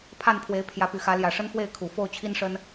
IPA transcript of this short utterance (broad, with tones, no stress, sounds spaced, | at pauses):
pʰ a˥˨ n pʰ w e˨˦ ɪ̯ pʰ j ä˨˦ p y˨˩ x ä˨˦ l j ä˨˩ ʂ ə˦ n f w e˥˨ ɪ̯ kʰ u˨˩ f o˥˨ ʊ̯ t͡ɕʰ i˦ n ʂ ə˦ n